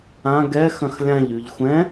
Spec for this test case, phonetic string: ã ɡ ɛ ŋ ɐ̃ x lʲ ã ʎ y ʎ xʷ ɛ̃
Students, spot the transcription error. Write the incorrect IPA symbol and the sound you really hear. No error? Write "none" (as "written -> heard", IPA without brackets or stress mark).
ŋ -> x